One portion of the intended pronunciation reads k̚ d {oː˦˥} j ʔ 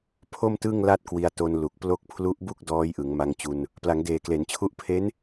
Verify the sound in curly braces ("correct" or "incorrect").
incorrect